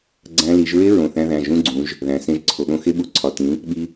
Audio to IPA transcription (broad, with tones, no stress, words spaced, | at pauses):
ɡ͡ǀæ̃˦˥ li˩˧ʒɹe˦˥ ɹõ˩˧˩θæ̃˧ðæ̃˩˧˩ ʒũ˦˥ɡ͡ǀũ˩˧ʒ | ðæ̃˩˧sẽ˧ʒǀʰo˩˧ɠõ˧ xe˧ɓu˩˧ ǀʰɒ˩˧˩ tĩ˩˧ | ɓi˧